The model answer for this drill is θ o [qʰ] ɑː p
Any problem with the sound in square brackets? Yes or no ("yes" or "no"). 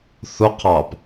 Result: no